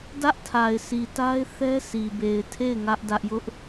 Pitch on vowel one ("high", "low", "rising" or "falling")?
high